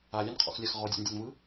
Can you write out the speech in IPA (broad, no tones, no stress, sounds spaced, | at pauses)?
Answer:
a lʲ a n qʰ ɔ̰ x lʲ a x ʁ ɔ dʲ ɔ̰ n dʲ ɔ n v ɯ